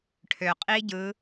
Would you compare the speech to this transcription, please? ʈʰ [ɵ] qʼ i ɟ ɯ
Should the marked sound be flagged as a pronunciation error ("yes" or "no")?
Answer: yes